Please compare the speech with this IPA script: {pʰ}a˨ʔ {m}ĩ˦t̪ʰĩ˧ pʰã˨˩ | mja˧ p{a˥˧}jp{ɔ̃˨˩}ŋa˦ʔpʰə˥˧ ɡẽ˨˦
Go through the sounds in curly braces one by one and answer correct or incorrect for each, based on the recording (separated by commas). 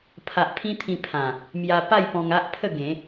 correct, incorrect, correct, incorrect